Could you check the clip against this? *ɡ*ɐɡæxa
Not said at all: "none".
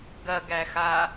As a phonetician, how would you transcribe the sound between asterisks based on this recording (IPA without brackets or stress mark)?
ɡ